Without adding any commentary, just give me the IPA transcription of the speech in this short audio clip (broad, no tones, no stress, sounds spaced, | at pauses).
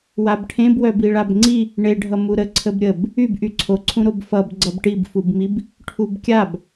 w a b ʈʰ ẽ b w œ b i ɭ a b ŋ͡ǀ i | ɳ e ɖʱ ʌ m u ɾ ə ǀʰ ə b ɾʲ ə b | y b ʔ y ǀʰ o ǀʰ ũ ɾ o b f ʌ b ɡ͡ǀ ʌ b ʈ i b f u b m i b | ʈʰ u b kʲ a b